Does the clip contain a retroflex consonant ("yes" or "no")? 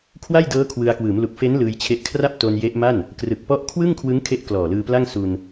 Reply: no